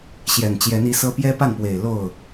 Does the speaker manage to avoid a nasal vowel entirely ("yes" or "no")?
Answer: yes